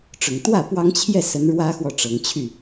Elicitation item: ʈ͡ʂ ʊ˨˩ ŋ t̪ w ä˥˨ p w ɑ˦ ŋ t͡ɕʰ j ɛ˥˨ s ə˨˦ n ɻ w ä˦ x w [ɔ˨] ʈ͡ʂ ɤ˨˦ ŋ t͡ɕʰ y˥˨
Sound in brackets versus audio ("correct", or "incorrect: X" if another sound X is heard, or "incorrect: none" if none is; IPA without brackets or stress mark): correct